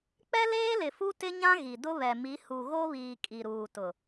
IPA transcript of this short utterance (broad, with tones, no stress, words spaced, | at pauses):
k͡pɛ˦ leː˦lɪ˨ fu˦tɪ˦ɲã˦ ɣi˨ dʊ˦ βɛ˨mi˨˦ hu˨ɣo˦βiː˨ kʼi˨ɾuː˨tʊ˨